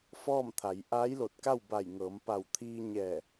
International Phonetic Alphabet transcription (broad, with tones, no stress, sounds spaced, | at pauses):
f ɔː˥˨ m t̪ʰ a˩˧ j ʔ aː˧˥ j l o˧˩ t̚ k a˥˨ w b a˧˩ j ŋ ɤː˩˧ m p a˧˩ w t̪ʰ iː˧ ɲ ɛː˧˩